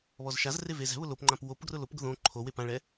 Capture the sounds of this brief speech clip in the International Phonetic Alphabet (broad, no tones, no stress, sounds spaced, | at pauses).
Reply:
β ɔ z ʃ a z r e v e z ɛ̤ β ʊ l o p ŋ͡ǃ ã p w o p ɡ r ʊ l o p ɡ ʊ ð õ ǃʰ o w e p ã ɭ ɛ